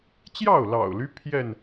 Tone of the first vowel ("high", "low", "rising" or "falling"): falling